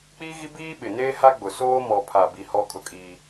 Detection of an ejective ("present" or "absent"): present